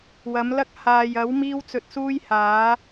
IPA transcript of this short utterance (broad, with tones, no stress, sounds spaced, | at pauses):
w ɐ˨˥ m l ɐ˥ k̚ h aː˨ j ɐ˨˥ w m iː˥ w t͡s ɵ˧ t̚ s uː˥ j h aː˨˥